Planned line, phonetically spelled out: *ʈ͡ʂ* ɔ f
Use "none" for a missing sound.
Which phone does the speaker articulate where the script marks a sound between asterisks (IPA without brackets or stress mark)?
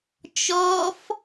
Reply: t͡ʃ